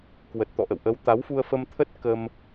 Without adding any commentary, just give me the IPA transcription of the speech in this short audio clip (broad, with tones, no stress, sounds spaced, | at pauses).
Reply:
k w ə˨˩ t̚ t̪ ɔ̰˧˨ ʔ ə̰˧˨ w ʔ ə˨˦ w t̪ a˨˦ w f u˧ ə̯ f ə˧ m t̪ʰ ə˦˥ t̚ k ə˧ m